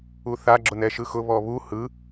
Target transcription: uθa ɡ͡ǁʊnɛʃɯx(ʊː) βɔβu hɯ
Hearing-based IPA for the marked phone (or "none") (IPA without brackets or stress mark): ʊ